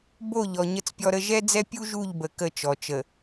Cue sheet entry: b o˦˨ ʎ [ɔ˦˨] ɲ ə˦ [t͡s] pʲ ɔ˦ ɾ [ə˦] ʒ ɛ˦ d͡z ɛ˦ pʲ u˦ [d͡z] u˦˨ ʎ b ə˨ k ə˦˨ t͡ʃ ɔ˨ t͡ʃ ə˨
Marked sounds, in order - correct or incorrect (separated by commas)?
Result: incorrect, correct, correct, incorrect